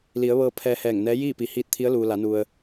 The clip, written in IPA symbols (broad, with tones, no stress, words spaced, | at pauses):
li˩˧ə̯ʋɤː˧ pʰɛː˧hɛː˧˩ŋnɛː˧˥ jiː˥˨pi˩˧ hiː˧t̚t̪ʰi˧˥ə̯luː˩ la˩˧nu˩ə̯